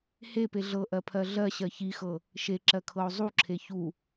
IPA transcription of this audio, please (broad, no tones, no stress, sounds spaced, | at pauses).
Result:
h e p e ɮ ɤ ʔ ɜ pʰ ɜ ɮ ɜ ɕ ɜ ç i x ɤ | ʃ e ǁ ɜ kʰ ɤ o̯ zˤ u ǁʰ e ç u